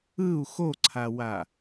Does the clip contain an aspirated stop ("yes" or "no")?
yes